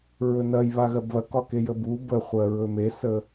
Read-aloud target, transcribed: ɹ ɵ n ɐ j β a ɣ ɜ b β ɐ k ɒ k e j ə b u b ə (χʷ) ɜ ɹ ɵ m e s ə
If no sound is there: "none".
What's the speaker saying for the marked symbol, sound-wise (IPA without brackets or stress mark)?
χʷ